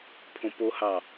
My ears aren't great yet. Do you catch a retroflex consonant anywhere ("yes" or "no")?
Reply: no